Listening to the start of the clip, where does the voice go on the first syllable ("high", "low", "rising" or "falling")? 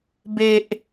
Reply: high